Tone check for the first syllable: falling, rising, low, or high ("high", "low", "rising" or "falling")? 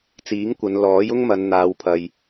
rising